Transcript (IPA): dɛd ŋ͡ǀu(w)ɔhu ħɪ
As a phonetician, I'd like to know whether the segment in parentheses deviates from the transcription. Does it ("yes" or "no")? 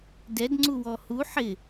no